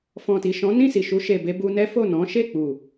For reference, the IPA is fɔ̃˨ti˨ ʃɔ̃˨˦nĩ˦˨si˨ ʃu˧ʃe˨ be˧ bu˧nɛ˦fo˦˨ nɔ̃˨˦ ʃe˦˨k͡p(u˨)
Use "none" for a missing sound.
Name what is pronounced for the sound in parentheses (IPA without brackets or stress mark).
u˨